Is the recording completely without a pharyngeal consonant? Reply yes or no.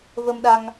yes